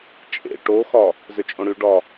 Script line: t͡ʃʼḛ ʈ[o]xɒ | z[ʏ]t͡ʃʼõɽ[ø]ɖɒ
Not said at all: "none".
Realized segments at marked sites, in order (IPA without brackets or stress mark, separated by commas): o, ʏ, y